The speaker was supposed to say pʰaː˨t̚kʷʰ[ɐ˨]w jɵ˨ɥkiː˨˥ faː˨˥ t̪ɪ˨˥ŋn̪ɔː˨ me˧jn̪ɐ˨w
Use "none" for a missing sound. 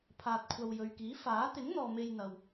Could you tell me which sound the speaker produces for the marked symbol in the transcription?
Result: ɐ˨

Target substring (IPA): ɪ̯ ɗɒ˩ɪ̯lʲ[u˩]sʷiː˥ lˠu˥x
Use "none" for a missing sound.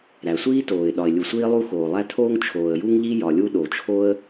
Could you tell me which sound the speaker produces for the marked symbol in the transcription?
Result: u˩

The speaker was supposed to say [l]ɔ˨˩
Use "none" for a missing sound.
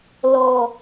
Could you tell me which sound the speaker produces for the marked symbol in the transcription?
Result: l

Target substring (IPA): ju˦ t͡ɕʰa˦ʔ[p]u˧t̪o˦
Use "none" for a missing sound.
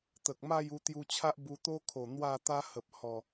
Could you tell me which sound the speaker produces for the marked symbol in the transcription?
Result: b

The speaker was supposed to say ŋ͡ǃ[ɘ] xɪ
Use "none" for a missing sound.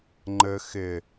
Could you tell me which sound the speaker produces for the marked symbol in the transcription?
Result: ɘ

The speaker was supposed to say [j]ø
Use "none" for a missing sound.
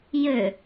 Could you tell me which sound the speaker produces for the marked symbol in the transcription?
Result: j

